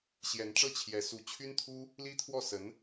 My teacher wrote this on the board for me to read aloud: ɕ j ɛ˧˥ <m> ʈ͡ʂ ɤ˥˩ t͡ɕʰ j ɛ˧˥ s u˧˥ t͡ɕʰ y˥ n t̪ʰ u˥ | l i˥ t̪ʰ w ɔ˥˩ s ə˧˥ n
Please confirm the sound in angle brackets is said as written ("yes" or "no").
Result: no